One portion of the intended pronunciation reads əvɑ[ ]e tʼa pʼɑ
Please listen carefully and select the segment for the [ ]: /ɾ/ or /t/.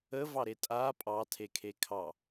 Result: ɾ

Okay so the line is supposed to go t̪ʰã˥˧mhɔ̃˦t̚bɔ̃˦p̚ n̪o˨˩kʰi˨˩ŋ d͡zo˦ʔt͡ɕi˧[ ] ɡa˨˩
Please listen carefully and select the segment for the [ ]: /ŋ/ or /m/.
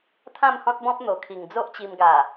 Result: m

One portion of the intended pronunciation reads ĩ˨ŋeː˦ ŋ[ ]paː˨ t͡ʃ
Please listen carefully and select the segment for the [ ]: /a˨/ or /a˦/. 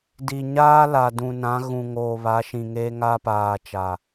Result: a˦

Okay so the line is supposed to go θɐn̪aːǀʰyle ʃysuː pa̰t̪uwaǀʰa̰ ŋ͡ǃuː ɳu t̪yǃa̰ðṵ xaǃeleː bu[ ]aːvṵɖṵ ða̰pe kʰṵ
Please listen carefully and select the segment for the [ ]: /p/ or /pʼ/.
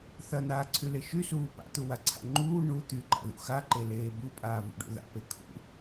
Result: pʼ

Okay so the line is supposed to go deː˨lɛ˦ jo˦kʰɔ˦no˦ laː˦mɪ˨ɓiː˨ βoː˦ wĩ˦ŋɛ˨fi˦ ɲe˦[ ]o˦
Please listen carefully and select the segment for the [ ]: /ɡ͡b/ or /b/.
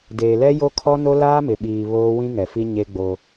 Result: ɡ͡b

